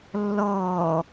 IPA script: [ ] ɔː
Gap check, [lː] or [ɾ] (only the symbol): lː